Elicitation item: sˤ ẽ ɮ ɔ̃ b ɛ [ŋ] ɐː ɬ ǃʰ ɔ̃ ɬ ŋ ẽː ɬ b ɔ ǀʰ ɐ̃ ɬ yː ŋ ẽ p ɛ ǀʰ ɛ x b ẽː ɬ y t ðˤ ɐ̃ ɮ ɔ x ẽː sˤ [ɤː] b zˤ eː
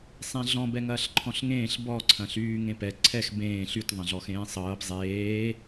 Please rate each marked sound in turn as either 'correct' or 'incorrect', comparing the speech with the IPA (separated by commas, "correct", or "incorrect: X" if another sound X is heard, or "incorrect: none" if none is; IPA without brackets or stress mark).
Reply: correct, correct